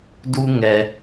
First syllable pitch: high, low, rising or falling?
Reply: high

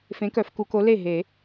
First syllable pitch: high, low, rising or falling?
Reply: rising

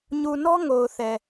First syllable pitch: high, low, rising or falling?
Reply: low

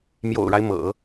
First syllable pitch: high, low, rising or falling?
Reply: low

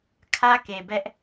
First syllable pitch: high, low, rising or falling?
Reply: high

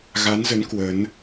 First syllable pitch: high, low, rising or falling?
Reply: rising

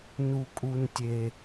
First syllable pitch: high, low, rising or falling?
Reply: high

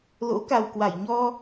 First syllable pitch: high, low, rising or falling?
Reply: rising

